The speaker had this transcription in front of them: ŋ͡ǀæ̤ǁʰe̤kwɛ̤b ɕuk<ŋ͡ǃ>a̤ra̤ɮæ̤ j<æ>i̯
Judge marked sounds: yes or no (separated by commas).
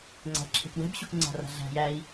no, yes